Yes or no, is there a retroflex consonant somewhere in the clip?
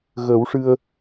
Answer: yes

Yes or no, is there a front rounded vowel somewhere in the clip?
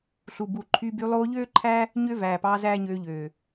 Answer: yes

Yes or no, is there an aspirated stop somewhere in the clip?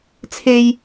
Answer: yes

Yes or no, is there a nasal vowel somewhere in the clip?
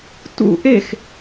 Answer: no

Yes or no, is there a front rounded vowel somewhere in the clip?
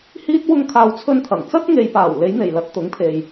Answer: no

